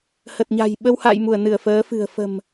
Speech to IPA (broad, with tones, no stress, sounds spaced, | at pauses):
h ə˨˩ t̚ ɲ a̤˨˩ j ɓ ə˧ w h a̰˧˨ j m u˧˩ ə̯ n ɨ˧˩ ə̯ f əː˨˦ f ɨ̤˨˩ ə̯ f ə̤˨˩ m